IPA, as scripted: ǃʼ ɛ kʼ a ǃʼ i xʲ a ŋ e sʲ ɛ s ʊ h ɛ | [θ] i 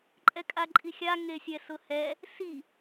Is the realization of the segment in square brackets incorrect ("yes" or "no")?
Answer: yes